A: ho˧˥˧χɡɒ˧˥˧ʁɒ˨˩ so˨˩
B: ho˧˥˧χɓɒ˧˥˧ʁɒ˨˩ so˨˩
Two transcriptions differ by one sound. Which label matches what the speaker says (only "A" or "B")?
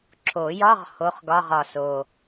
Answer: A